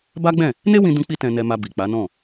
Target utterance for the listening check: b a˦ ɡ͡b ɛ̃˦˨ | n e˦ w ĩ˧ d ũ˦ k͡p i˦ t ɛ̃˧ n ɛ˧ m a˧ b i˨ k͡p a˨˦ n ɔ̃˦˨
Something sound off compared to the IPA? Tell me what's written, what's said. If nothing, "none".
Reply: none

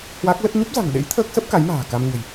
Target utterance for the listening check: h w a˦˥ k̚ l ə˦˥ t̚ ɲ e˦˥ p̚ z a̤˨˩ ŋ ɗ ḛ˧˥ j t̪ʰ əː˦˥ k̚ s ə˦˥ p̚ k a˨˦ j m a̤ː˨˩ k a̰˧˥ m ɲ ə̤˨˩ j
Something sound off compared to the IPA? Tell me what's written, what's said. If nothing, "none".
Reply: a̰˧˥ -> a˧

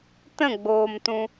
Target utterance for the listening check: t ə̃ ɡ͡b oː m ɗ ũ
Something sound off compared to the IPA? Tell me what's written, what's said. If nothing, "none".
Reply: ɗ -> t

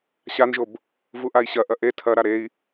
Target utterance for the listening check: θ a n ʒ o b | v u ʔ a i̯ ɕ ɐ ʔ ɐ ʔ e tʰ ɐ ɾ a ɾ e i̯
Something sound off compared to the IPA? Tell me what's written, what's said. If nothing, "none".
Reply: θ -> ɕ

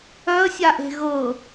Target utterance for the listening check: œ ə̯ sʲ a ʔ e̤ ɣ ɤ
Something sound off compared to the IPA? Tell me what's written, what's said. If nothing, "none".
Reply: none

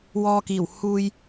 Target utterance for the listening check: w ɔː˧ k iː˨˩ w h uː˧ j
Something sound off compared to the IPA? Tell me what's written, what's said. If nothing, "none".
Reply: none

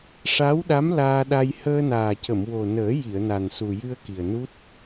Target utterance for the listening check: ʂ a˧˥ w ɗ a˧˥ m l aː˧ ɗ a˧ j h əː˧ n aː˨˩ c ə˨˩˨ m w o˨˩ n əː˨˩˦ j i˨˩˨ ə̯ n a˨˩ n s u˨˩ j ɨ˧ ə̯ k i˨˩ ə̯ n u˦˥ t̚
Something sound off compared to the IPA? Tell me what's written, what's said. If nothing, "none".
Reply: none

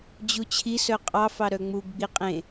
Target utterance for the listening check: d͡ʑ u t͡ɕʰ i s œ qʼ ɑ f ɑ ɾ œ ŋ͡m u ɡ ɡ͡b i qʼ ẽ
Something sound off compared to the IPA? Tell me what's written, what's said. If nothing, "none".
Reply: none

